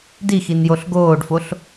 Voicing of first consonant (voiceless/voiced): voiced